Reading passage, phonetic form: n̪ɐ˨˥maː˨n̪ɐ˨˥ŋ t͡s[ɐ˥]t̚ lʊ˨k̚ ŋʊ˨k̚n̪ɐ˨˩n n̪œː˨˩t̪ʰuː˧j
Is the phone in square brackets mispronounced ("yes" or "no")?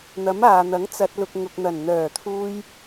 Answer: yes